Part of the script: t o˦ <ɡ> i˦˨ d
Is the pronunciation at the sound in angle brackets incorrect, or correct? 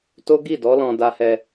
correct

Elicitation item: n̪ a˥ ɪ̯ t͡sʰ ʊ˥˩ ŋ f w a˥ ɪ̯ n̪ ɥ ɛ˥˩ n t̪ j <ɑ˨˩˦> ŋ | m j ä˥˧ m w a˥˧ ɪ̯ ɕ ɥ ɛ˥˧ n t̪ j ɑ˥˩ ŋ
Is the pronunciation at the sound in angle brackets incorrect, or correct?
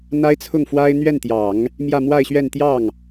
correct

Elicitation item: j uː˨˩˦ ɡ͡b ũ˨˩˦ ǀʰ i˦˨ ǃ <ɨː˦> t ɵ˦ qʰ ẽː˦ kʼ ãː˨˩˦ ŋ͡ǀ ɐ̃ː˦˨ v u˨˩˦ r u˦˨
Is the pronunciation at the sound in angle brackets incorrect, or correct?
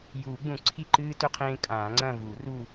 correct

